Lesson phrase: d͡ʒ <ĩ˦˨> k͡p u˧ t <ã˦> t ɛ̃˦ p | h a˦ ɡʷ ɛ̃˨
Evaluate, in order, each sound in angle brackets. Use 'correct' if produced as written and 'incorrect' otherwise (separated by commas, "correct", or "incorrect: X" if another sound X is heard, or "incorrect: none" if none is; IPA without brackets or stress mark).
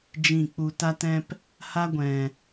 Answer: correct, incorrect: a˦